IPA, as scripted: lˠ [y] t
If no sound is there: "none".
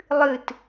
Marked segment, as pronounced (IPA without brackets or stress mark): ɨ